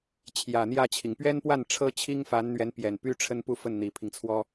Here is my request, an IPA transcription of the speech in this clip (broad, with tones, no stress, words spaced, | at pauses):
t͡ɕʰjä˨˩n̪jä˥˩t͡ɕʰi˩ŋ pɥɛ˥npwa˥˩n ʈ͡ʂʰɤ˥t͡ɕʰi˥ŋ fa˧˥nn̪ɥɛ˧˥n pjɛ˨˩npy˥ʈ͡ʂʰə˥npu˥˧ fə˥˩nn̪i˨˩pʰi˦ŋt͡sʰwɔ˥